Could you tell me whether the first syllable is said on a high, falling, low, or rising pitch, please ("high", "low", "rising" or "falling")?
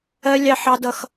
high